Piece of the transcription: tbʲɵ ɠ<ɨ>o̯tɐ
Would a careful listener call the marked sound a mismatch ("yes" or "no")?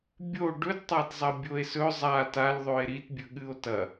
no